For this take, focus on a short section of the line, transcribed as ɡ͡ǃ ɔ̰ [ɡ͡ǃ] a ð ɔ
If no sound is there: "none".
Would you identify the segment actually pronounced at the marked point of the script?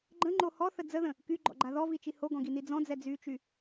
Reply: ɡ͡ǃ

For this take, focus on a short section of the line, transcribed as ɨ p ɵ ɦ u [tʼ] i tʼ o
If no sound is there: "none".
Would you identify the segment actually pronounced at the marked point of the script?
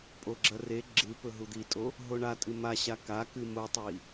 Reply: d̪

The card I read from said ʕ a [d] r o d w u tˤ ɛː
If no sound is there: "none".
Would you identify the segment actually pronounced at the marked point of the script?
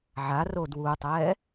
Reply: none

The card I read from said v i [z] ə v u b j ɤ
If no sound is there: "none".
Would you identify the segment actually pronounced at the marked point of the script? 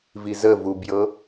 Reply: z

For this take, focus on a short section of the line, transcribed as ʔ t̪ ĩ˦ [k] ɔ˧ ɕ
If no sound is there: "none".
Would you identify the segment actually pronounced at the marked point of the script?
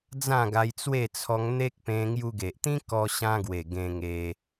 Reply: k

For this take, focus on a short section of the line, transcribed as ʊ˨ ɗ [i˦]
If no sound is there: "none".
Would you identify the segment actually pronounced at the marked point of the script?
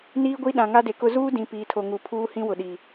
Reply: i˨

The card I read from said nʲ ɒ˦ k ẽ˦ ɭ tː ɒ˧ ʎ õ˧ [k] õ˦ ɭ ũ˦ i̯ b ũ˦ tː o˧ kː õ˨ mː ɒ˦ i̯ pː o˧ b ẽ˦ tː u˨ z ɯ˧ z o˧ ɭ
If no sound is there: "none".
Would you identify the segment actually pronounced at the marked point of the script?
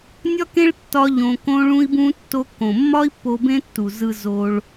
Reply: k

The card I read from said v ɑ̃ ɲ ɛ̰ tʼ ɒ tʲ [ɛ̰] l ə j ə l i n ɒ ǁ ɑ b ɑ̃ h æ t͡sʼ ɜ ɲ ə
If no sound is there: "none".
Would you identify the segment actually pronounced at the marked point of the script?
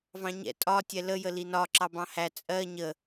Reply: ɛ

